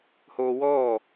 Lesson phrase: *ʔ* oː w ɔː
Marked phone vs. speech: incorrect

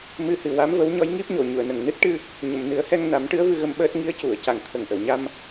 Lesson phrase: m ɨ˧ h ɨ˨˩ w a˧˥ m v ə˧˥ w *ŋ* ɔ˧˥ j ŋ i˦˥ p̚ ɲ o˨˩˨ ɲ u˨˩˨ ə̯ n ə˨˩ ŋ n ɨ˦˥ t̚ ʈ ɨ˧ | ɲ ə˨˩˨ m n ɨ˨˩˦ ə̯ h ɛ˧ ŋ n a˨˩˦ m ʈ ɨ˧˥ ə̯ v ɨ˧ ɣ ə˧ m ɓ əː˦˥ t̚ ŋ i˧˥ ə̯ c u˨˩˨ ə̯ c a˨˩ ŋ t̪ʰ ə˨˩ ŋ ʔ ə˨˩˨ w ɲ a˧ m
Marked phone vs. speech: incorrect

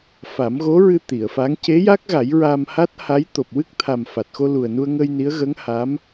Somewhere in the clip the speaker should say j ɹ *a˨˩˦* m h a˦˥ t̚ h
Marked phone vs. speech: incorrect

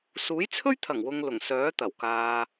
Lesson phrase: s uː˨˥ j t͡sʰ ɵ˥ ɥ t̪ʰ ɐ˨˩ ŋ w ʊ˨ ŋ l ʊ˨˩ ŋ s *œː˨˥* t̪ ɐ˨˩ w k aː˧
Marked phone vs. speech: correct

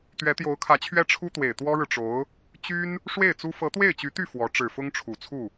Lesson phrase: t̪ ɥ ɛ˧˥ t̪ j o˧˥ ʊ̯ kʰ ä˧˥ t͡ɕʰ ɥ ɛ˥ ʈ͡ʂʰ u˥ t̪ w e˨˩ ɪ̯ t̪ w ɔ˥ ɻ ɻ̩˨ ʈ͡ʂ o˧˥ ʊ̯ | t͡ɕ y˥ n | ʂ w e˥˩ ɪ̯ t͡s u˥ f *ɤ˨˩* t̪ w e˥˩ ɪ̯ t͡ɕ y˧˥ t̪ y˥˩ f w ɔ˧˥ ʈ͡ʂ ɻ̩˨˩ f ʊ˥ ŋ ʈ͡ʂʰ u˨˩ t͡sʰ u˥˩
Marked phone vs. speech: incorrect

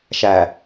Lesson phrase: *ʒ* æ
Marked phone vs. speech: incorrect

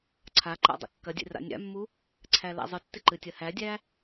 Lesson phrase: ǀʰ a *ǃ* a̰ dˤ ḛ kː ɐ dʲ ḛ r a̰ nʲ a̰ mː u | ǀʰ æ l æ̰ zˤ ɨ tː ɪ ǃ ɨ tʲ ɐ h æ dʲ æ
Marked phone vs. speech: correct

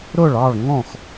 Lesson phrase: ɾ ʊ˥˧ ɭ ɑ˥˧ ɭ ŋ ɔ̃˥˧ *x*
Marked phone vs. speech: correct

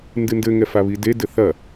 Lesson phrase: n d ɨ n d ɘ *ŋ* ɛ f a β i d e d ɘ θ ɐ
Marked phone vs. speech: correct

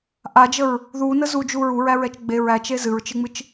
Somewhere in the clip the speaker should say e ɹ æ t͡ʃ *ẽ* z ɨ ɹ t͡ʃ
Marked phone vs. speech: incorrect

